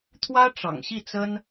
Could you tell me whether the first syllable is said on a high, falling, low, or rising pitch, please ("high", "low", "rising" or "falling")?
high